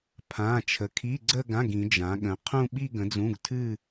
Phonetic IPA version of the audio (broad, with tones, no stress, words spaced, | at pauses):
pʰã˧˥˧ t͡ʃʰə˨˥kʰi˧˥˧ɡ͡ǀə˥˧ɡã˧˥˧ɡ ĩ˨˥d͡ʒã˨˥ɠə̃˨˥ qʰũ˥˧ɓi˥˧ ɡə̃˨˥d͡zũ˧˥˧ɡtʰɨ˥˧